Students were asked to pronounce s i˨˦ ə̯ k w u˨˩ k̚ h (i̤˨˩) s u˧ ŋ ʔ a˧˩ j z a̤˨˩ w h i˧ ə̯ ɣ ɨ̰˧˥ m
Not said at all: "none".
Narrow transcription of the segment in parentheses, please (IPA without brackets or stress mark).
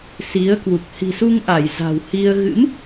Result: i̤˨˩